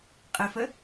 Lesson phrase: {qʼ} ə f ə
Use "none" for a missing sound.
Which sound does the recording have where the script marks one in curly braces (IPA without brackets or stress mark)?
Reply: qʼ